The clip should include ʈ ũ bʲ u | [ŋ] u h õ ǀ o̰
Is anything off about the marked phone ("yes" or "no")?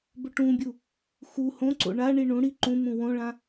yes